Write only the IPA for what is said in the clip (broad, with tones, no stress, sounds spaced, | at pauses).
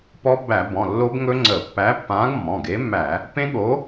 p ɔ˦˥ b æ˧˩˧ b ɔ̃˩˧˩ lː o˦˥ b ŋ ɵ˦˥ ŋ͡ǀ ə˧˩˧ pː æ˨˥ pː ãː˨˥ ɡ mː ɔ̃˩˧˩ ɡ e˨˥ mː æ˧˩˧ | p ẽ˦˥ ɠ o˨˥